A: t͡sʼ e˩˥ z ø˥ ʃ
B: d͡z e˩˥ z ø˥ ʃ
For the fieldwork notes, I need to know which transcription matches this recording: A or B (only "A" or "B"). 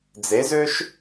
B